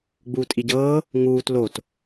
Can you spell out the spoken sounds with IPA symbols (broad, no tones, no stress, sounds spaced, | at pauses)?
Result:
ɡ͡b uː tʼ i ɟ ɤː | ŋ uː t l o t